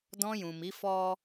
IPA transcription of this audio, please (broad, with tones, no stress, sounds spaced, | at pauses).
d ɔ̃˧ j ũ˨ m i˨˦ f ɔ˦